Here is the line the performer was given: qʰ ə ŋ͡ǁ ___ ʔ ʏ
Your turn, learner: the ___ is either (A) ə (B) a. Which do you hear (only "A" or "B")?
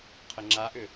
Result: B